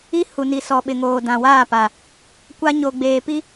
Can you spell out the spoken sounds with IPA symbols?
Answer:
i˦ h u˨ n i˨ s ɔ˨ ɓ ɪ˨ ŋ oː˨ d ã˨ w aː˦˨ p a˨ | kʷ a˦ ɲ o˨ ɡ͡b eː˨ p i˦

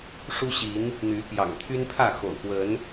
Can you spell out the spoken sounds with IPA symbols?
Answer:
ʂ u˦ ɕ i˨˦ n | n̪ y˨˦ p j ɑ̰˨˩ ŋ t̪ʰ y˦ n pʰ ä˥˨ x o̰˨˩ ʊ̯ p w ə˨˦ n

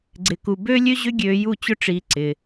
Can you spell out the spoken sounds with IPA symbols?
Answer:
ɡ͡ǀ ɪ˧ k u˧ b ø˦ lʲ ø˦ ʑ ʏ˦ ɡʲ øː˧ j u˦˨ t͡ɕ ʊ˦ ʈ͡ʂ iː˧ ǀ ɪ˧

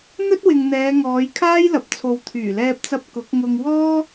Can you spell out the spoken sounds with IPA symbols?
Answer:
n̪ ɵ˥ t̚ w ɪ˨ ŋ n̪ ɛː˨˧ ŋ ɔː˨˧ j kʰ aː˥ j l ɐ˨ p̚ t͡sʰ o˨ w t̪ʰ yː˨˩ l ɛː˧ p̚ t͡s ɐ˧ p̚ k ʊ˨˥ k̚ ŋ ʊ˧ ŋ w ɔː˥

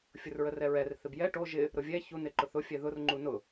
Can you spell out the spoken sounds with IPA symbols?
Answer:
fʲ ʊ r ɹ ə r ɛ ɹ ɛ r θ ɪ b j ɛ ʈ o ʒ ɪ | ɾ ʊ vʲ ɛ ç u n ɪ ǃ ʊ θ ʊ fʲ ɛ ð ʊ r ŋ͡ǃ u n ʊ

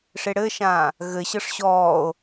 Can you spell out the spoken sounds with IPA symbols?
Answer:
ʂ e ɽ ɘ ʃ ãː | ɣ ɘ ɕ ɤ ʂ ɕ ɔː o̯

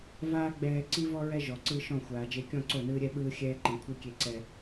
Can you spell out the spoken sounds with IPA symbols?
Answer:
v aː˦ ɡ͡b ɛː˦ ǀ i˦ v ɔ˦ ɹ ɛ˦ ʒ ɔ˨ ǀ ɯ˦ ʃ ɔ̃˦˨ xʷ aː˨ d͡ʒ e˦ kʲ ɔ̃˦˨ ǀ o˦˨ n ɯː˦ ɾʲ ɛ˦ ɓ ɯː˦ xʲ ɛː˦ ǃ ĩ˨ kʷʰ i˦ kʲ e˦ ǀ ɛ˦

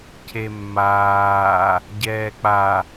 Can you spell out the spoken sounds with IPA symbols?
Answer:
cʰ e mː aː | ɟ ɛː k͡p a

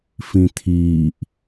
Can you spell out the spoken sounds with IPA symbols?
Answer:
f ĩ t̪ʰ iː ʔ

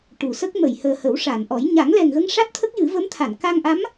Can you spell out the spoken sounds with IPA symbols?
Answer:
ʈ u˨˩˨ s ə˦˥ k̚ m ə˨˩˨ j h əː˨˩ h ə˨˩˦ w ʂ a˨˩˨ n ʔ ɔ˨˩˦ j ɲ a˨˩˦ ŋ l ɛ˨˩ ŋ ɣ ə˧ ŋ ʂ a˦˥ t̚ t̪ʰ ə˦˥ k̚ j ɨ˨˩˦ v ə˧˥ m t̪ʰ a˨˩˨ n k a˧ ŋ ʔ a˧˥ m

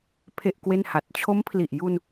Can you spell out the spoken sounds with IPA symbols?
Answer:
pʰ e˥˩ ʔ k w e˥˩ n h a˨˩ t̚ t͡ɕʰ o˦˥ m pʰ l i˨˩ ʔ j u˧ n

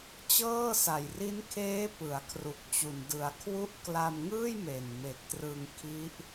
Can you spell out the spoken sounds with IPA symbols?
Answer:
t͡ɕ ɤː˥˩ s a˨˩ j r i˦˥ n kʰ eː˦˥ p ɯ˩˦ a̯ kʰ r u˨˩ k̚ t͡ɕ u˨˩ n d ɯ˩˦ a̯ kʰ w u˦˥ ʔ k l a˧ m ŋ ɯː˥˩ j m e˨˩ n m e˨˩ k̚ t r ɯ˧ ŋ kʰ i˦˥ ʔ

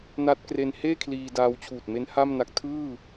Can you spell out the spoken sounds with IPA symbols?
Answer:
n a˦˥ t̚ k r e˧ n h eː˥˩ kʰ l iː˧ d aː˧ w t͡ɕʰ uː˨˩ t̚ m e˦˥ n h a˥˩ m n a˦˥ k̚ tʰ ɯː˥˩

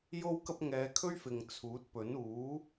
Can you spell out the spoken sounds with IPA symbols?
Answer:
j o˥ w k ɐ˥ p̚ ŋ ɛː˧ kʰ ɵ˥ ɥ f ɪ˨ ŋ t͡sʰ uː˨˥ t̚ p ɵ˨˥ n uː˨˥

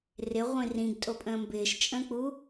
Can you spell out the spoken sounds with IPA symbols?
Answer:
r ɪ ʁʷ ĩ r ĩ ɡ tʼ o pʼ ə̃ː m b ɪː ʃ t͡ʃʼ ə̃ː k͡p u

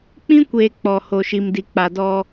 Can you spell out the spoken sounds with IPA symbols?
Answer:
k͡p ĩ˦ kʷ eː˨ k͡p ɔ˨ h o˨ ʃ i˨ m d i˨ k͡p a˨ d ɔ˦

